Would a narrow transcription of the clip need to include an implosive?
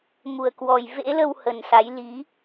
no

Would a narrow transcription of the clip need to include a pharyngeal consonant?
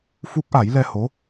no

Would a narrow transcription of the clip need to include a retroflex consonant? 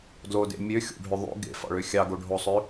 yes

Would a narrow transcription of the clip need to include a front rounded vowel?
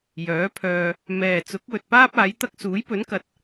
yes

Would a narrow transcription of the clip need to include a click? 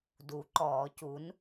yes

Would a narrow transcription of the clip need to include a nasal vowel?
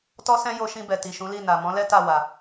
yes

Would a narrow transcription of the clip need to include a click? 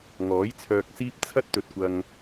no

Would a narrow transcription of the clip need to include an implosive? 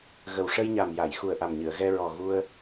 no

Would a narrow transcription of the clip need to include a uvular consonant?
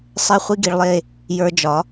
yes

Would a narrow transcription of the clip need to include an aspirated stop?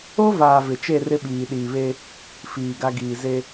no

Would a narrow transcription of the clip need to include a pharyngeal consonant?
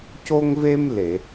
no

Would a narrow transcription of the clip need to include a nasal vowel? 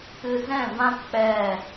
yes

